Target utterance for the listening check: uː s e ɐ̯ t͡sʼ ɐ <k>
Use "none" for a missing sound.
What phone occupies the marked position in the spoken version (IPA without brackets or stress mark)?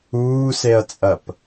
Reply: p